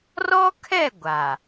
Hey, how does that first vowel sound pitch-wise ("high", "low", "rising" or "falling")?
high